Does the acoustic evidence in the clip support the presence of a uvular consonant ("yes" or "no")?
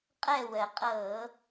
yes